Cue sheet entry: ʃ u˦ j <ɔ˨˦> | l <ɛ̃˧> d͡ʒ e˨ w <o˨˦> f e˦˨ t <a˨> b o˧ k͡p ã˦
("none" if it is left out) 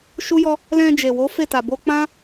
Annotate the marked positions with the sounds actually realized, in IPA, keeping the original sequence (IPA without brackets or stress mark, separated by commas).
ɔ˦, ɛ̃˧, o˨˦, a˨